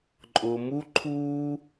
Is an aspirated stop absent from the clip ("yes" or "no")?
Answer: no